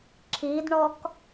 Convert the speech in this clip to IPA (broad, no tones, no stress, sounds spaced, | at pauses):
ǁʰ i d ɳ ɔ k